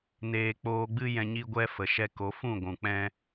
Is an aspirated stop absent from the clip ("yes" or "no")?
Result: yes